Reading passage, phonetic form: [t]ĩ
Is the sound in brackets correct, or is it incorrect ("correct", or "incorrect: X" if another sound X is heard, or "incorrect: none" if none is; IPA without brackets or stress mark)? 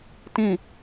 correct